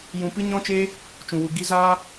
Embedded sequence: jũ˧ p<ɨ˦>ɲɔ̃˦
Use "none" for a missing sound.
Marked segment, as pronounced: ɨ˦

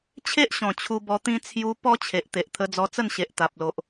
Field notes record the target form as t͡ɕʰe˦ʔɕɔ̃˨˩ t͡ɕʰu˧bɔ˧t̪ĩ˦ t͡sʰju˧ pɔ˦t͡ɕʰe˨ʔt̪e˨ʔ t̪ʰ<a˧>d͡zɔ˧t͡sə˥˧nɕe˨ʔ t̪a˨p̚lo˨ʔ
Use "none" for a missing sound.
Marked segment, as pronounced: ə˧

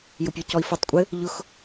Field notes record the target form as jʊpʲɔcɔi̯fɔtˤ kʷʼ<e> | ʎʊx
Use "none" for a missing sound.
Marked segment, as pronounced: ɘ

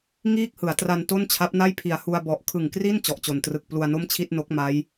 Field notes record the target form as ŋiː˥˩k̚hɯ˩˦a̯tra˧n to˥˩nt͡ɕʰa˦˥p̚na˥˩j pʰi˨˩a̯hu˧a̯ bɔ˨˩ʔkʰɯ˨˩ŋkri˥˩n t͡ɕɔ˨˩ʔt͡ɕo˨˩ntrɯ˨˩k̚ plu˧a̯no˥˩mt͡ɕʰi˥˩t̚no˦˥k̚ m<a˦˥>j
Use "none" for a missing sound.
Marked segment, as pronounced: a˦˥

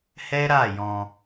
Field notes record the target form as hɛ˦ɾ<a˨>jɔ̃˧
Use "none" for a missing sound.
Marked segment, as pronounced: a˦˨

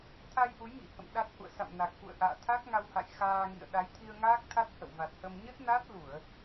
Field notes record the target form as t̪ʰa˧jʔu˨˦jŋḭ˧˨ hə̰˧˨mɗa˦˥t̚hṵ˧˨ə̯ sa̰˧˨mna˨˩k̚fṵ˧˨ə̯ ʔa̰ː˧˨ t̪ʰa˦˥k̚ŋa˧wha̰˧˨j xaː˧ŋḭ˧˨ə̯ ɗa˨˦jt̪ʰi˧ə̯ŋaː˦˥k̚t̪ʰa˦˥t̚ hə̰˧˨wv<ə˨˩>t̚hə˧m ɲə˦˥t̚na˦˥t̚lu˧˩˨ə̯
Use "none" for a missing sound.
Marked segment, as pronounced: a˨˩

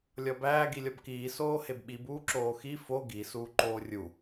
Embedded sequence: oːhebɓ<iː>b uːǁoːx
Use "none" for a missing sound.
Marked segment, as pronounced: i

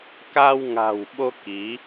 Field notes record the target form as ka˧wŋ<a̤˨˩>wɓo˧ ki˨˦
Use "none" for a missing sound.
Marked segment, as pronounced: a̤˨˩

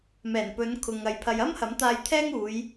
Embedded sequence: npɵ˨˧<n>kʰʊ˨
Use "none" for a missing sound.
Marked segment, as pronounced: n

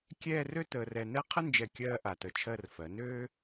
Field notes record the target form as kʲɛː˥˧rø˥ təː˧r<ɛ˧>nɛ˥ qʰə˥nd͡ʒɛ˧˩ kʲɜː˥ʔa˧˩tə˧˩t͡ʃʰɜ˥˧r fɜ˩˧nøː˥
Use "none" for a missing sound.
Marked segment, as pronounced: ɛ˧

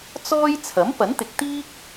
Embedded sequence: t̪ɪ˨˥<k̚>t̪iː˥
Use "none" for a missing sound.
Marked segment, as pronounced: k̚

